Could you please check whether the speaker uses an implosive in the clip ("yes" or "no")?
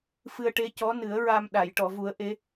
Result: yes